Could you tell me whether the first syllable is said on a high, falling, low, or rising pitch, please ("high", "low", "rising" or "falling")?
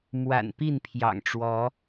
low